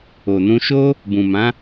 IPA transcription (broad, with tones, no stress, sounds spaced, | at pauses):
o˨ n ũ˧ ʃ o˦ | b ũ˨ m ã˨˦